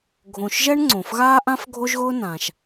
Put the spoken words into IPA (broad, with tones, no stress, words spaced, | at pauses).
ɡʱõ˨ʃ ʒɛ˥ɳŋ͡ǀõ˩fɣaː˥ʔã˥f ɡʱo˥ʒɣʊː˥nãː˩ʃ